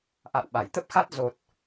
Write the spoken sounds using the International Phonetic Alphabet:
ʔ a̰˧˨ w ɓ a˧˩ j t̪ ə˦˥ p̚ x a˦˥ t̚ z o˨˩ t̚

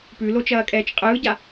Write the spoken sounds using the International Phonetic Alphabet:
p ʉ l o t͡ʃ ɐː kʼ ɛː t͡ʃ qʼ ɯː ɟ a

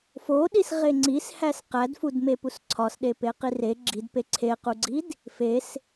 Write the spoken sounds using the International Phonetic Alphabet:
f o ɗ i s ʁ e ŋ͡ǀ i s h æ s q æ d f u d m e p u s ǀʰ ɒ s ɗ e p e q i r e ɡ͡ǁ i d p e ǀʰ e q u ɡ͡ǀ i d | f e s

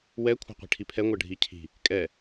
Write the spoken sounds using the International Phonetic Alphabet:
w ɛ kʷʰ ɛ̤ qʷ i̤ ʈʰ i pʰ ɛ ŋʷ ɜ ɖʱ i cʰ i̤ | kʼ ɛ

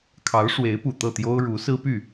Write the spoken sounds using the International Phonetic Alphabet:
kʰ ɑ˧˥ ʊ̯ ʂ w e˧˥ ɪ̯ p u˨˩ t̪ ɤ˥˩ t̪ j o˥ ʊ̯ ɻ u˧˥ s ɹ̩˥ p y˥˩

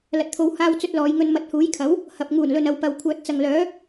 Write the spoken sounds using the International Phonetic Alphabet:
l ɐ˨ t̚ t̪ʰ o˨˧ w h aː˧ w t͡s ɵ˧ t̚ l ɔː˨˧ j ŋ ɵ˧ n m ɐ˨ t̚ h uː˨˥ j kʰ ɐ˨˥ w | h ɐ˨ p̚ ŋ uː˨˩ n l ɵ˨ n ɐ˨ w p ɐ˨ w kʷʰ œː˨ t̚ t͡s ɐ˨ ŋ l œː˨˥

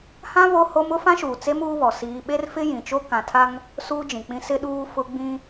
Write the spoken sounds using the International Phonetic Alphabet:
h ã˦ β o˦ h o˦ m ʊ˦ f ã˦ ʃ uː˨ t͡s e˦ m uː˦ β ɔ˨ s iː˦ ɓ e˦ r f ɪ˦ j ĩ˨ t͡ʃ o˦ k ã˨ tʰ a˦ ŋ | s uː˦ d͡ʒ ĩ˨ k͡p ĩ˦ s ɪ˦ ɗ uː˦ f ʊ˦ ɡ͡b ĩ˦

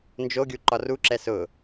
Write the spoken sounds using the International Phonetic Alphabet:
n d͡ʒ o ɡʲ u ǃ ɒ r u ǁ ɛ s ʊ

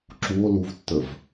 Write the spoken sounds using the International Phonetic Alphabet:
ǁ u o̯ l u v tː ə v

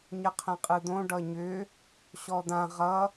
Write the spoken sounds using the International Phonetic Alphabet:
ɲ ə qʰ ɛ̃ qʼ ɯ d̪ õ ɖ ʌ ɲ ʏ | ɕ ɔ d̪ ã ʁ ʌ

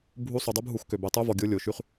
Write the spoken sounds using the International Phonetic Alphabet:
bʱ u˧˥ sˤ u˩ dˤ o˥ b ɦ u˩˧ x k ø˩ b ɛ˩˧ tˤ œ˧˥ v ɔ˩ ɡʲ o˧˥ lʲ o˩ ʃ y˧ χ

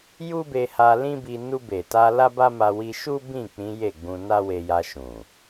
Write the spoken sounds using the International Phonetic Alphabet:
j u˦ b e˧ h a˧ l ĩ˦ b i˧ n u˧ b e˨ t a˧ l a˦ b a˦ m a˧ w i˧ ʃ u˦ b ĩ˦˨ k͡p ĩ˨˦ j e˦˨ ɡ͡b ũ˧ n a˦ w e˧ j a˧ ʃ ũ˨

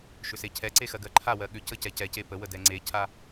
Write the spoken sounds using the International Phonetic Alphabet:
ʃ ʏ s e cʰ ɛ ǀ e x ɜ ɡ ɜ ǃʰ a w ɜ ɠ ʏ c ə c ɛ c ɛ c e p ə w ə d ɛ ŋ͡ǀ e cʰ a

